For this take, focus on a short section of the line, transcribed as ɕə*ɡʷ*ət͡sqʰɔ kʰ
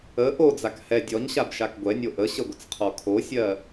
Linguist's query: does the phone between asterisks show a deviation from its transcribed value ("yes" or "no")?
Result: no